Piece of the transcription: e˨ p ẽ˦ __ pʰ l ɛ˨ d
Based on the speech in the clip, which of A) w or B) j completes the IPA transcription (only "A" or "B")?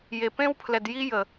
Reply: A